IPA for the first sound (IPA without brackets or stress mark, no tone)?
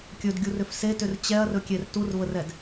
kʲ